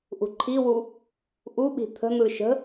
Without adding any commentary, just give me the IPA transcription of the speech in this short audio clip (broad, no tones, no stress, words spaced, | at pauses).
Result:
ʔṳǃʰiwu | ʔuɓi̤ t̪ʰə̤n̪ɯ ʃə̤